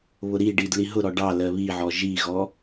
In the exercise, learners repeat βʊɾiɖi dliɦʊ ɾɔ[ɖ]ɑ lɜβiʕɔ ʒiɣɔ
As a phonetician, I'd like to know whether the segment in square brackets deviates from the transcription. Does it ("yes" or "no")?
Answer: no